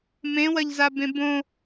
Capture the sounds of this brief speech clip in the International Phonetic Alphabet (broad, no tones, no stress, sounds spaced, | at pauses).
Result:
m ẽ w ɐ ʎ z a b ẽ b õ